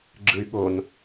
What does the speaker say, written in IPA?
ɡ͡ǁ ɯ y̯ ɠ o n

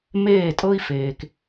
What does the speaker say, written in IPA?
m eː˥˩ tʼ ɤ˥ i̯ f eː˩ k

